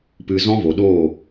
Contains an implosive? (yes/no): yes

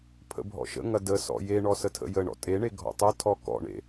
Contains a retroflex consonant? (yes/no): yes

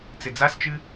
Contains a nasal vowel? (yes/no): no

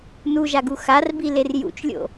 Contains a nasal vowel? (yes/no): no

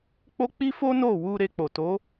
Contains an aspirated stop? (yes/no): no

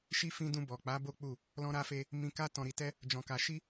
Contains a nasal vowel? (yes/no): yes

